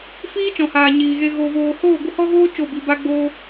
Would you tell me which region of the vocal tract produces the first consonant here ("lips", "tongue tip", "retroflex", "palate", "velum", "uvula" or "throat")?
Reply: lips